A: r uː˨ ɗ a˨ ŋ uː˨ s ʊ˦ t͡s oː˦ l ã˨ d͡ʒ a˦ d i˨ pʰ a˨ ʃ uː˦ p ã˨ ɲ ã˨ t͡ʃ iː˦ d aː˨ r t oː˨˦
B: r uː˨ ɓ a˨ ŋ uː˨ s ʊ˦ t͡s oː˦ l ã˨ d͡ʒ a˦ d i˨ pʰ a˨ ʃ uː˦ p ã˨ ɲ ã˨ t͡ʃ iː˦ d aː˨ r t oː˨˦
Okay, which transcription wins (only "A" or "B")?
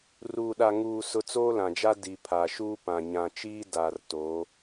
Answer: A